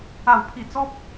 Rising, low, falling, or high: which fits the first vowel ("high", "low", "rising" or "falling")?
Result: falling